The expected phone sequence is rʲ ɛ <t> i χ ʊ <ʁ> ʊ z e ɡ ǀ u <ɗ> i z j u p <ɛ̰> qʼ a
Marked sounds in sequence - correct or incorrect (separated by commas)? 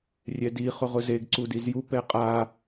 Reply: incorrect, correct, incorrect, incorrect